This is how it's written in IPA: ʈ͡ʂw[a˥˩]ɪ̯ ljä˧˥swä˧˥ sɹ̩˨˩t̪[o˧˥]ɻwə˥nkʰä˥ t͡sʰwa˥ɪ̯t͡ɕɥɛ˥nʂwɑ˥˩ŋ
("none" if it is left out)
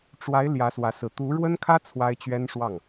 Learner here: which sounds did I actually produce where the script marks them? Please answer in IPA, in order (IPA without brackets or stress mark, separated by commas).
a˧˥, u˧˥